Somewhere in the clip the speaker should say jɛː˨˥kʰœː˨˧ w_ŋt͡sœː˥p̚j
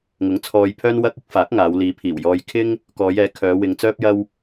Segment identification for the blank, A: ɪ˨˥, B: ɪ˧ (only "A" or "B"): B